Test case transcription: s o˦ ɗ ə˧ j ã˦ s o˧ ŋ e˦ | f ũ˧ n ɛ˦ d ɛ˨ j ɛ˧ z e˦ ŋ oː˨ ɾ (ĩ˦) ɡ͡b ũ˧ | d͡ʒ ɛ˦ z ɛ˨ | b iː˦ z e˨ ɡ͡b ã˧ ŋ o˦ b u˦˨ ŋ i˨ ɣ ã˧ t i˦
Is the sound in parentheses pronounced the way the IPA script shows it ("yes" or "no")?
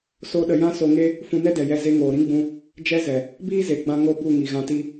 yes